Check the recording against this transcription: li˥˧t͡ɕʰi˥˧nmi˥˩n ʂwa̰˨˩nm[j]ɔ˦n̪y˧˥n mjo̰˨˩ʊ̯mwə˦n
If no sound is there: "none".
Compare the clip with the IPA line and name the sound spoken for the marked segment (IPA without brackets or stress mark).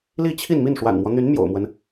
w